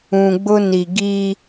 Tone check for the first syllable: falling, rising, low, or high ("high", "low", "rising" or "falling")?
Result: low